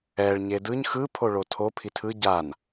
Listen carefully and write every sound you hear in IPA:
ɛ ɭ ɲ e d ɯ ɲ x ɯ pʰ o ɭ o tʰ o pʰ i tʰ ɯ ɟ a n

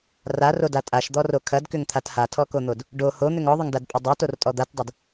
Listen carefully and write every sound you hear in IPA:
r a r o d a tʼ a ʃ d̪ ɔ r o kʰ ɐ d k ʏ ŋ t̪ʰ a t h a tʰ ɔ k o n̪ o d | ɖ o h o n̪ ʏ ŋ ɔ ðˤ ʏ ŋ d a d pʼ o dˤ ɐ t o r tʼ ɔ d̪ a t dˤ ɐ d

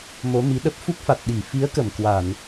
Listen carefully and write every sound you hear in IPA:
m o˨˦ m i˨˦ ɗ ə˦˥ p̚ f u˦˥ k̚ f a˨˩ t̚ ɗ i˧˩ f i˨˦ ə̯ k ə˧˩ m k w a˧˩˨ n

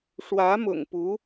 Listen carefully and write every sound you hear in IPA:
ʂ w ä˧˥ m ʊ̰˨˩ ŋ p u˧˥

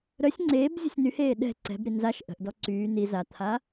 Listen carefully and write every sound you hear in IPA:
ɾ œ sʲ ŋ͡ǀ eː b zʲ ə̤ sʲ n y h eː ɗ ɛ̤ ǀ ɛ̤ b ɾ i n z a ʃ ʔ ə̤ ʔ d ɔ ǀ yː n i z a t̪ʰ a

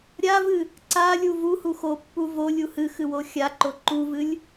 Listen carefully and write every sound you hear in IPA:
ɾʲ a v ɨ | ǀ a lʲ u v u h u x o pː u v o lʲ u h ɨ x ɨ w o xʲ a ǃ o ǃ u v ɨ lʲ

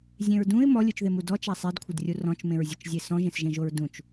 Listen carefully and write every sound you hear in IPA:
zʲ ẽ ɹ d ũ ɪ̯ m ɔ lʲ u t͡ʃ ð e m u d ɔ t͡ʃ a sˤ e d kʷʰ ɪ d rʲ u r ɔ̃ t͡ʃ m ẽ ɹ zʲ u t͡ʃ zʲ e s ɔ̃ ʒ ẽ s ʒ ẽ ʒ o ɹ d ũ t͡ʃ

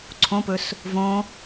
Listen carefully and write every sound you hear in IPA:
ǀʰ õ p ɵ s | v õ

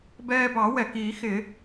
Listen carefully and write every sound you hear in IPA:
b ɛː˧ b ɑ˨˩˦ w ɛ˩ k i˨˩˦ x ɪ˨˩˦

